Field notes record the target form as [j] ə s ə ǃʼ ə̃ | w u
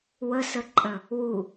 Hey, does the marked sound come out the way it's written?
no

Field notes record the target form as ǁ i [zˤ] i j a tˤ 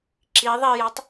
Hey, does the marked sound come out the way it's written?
no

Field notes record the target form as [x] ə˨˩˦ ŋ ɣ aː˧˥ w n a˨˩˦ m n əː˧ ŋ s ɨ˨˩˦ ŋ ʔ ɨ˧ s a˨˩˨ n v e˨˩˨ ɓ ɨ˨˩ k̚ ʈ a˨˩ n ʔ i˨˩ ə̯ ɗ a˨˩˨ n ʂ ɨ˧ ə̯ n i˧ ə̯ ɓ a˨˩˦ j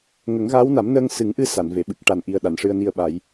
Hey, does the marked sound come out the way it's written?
no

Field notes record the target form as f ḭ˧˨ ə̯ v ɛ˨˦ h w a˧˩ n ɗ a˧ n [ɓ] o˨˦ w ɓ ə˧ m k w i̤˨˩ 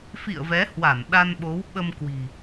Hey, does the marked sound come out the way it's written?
yes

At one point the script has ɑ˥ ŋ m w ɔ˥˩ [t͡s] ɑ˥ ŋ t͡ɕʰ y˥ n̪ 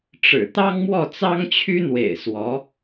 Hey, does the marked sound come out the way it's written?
yes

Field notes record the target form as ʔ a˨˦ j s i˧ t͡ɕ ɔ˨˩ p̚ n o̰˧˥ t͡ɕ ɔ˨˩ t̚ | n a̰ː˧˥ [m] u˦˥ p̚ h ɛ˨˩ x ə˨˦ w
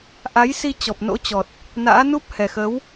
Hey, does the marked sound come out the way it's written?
no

